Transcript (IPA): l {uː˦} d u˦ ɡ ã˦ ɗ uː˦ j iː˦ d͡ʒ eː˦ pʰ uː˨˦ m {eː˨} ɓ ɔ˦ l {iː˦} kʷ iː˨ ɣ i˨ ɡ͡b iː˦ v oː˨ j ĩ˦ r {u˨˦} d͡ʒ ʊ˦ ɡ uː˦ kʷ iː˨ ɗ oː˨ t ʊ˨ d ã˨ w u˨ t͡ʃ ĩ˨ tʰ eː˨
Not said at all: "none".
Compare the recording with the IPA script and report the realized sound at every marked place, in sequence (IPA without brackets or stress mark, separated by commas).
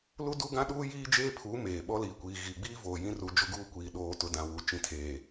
u˦, eː˨, iː˨, u˨˦